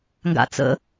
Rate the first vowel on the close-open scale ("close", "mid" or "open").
open